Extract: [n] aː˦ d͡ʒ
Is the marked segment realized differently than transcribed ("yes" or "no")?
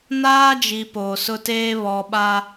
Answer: no